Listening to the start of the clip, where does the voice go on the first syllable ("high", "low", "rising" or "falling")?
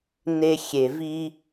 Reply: high